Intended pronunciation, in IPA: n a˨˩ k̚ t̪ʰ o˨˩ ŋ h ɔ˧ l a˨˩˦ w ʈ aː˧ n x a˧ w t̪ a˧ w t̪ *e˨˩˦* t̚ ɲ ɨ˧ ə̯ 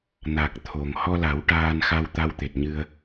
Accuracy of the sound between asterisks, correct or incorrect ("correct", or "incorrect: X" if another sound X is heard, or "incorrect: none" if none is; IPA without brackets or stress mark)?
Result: incorrect: e˨˩